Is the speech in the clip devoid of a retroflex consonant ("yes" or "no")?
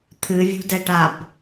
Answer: no